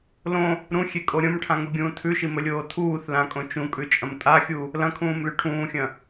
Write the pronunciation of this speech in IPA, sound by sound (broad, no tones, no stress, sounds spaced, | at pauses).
l õ | ɾ ũ xʲ e kʼ o ɾʲ õ m ʈʰ ã ŋ u ɡʲ ũː tʰ ʉ ʃ i m ɵ lʲ oː tʰ uː θ l ã kʼ õ t͡ʃ ũ kʼ ʉ t͡ʃʼ ɐ̃ m tʼ a xʲ u | l ɐ̃ kʰ ũː m l ʉ ʈʰ ũː xʲ ɐ̃